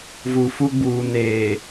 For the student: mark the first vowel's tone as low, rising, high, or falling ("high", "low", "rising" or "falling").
low